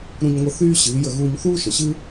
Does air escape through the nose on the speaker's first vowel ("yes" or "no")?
yes